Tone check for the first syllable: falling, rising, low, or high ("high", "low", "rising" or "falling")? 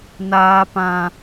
high